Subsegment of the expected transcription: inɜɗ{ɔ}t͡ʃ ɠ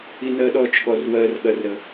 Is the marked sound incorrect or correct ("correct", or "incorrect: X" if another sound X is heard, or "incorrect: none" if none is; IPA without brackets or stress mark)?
correct